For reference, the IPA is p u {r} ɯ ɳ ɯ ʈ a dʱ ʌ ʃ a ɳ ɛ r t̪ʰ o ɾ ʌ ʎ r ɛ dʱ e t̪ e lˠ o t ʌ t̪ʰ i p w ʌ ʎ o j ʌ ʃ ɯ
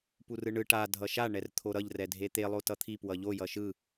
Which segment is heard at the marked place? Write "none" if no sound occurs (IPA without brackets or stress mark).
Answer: r